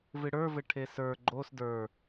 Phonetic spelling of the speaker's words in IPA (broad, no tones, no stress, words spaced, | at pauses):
vɨɽə˞vɘ ʈʰesə˞ ɡ͡ǃos də˞